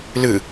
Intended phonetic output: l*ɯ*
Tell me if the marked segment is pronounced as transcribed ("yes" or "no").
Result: yes